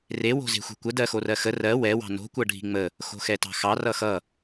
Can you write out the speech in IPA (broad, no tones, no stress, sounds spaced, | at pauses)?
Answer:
r e w o̤ z e̤ xʷ ɛ̤ kʷ ə d ɜ x o r ɜ x ə r ɜ w ɛ w ɑ̤ n o̤ kʷ ʌ ɖʱ i̤ ŋ͡m ə | x o̤ x ɛ t ɑ̤ x ɑ r ʌ x ʌ